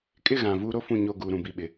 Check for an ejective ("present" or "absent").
present